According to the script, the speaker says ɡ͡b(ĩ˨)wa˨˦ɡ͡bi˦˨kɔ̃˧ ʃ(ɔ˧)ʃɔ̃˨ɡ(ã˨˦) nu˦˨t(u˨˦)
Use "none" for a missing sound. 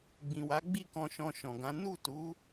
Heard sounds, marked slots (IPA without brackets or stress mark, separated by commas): ĩ˨, ɔ̃˧, ã˨˦, u˨˦